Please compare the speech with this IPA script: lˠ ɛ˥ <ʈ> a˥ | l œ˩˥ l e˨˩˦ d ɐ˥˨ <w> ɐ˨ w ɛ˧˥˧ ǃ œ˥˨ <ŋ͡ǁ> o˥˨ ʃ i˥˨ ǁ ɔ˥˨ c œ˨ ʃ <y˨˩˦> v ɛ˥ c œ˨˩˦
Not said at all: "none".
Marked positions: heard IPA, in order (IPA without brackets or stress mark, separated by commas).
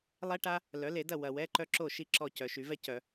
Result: ʈ, w, ǁ, y˨˩˦